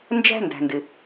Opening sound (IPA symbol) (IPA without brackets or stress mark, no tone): n